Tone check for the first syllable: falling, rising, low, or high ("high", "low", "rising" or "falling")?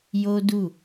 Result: high